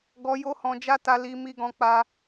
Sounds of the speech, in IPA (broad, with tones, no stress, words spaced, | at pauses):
ɡɔ˧ jo˧hɔ̃˨d͡ʒa˧ ta˧li˧ mi˧ɡɔ̃˧k͡pa˧